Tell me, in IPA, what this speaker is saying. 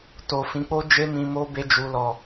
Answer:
to˨fĩ˨˦k͡po˦ d͡ʒe˦mĩ˧mo˦ be˦d͡ʒu˧ lɔ˨

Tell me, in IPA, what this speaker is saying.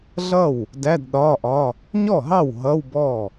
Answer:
ɮʌ˥˩w | dæ˧˥˧dɗɒː˧˥˧ʔɒ˧˥˧ | ɲɔ˥˩ɦɑ˥˩w ɦʌ˧˥˧wbɔ˥˩

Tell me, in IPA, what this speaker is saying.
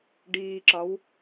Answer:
ɖiːǁɒw

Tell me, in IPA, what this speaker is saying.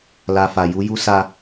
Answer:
la˧ fa˨ ju˨˦ju˦sa˧

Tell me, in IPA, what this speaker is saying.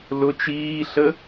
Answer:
lʊ t͡ʃiːɬə

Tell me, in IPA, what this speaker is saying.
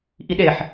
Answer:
ʔiɗeħ

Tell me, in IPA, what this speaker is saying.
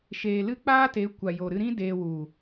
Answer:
ʃeː˨ lɨ˦ k͡paː˦te˨˦ kʷa˨jo˨ɾɨ˧ɾĩ˦ deː˧wu˨

